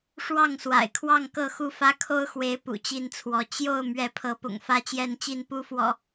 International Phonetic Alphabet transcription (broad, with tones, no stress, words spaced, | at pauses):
ʂwɑ˥˨ŋswa̰˨˩ɪ̯kʰwɑ˥˨ŋ kɤ˥˨xu˥˨fä˦ kʰo˦ʊ̯xwe˨˦ɪ̯ pṵ˨˩t͡ɕi˥˨nt͡sʰwɔ˨˦ t͡ɕjo˥˨ʊ̯ mɥɛ˨˦pʰɤ˨˦pʊ̰˨˩ŋ fä˦t͡ɕjɛ˥˨nt͡ɕi˥˨n pu˦fwɔ̰˨˩